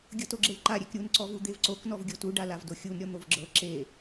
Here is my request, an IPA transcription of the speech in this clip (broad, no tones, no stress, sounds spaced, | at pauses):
ɡʲ ɤ t o ɡ͡ǁ e l ǃ a ɾʲ e k ɾʲ u n ǀ ɔ v u d̪ e v ǀ o k n ɔ v ɡʲ o t u ɖ a l a v d o xʲ u n ɾʲ ɔ n̪ o v ɡ͡ǁ ɤ ǁ e